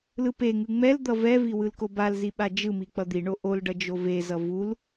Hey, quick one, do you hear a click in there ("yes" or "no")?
no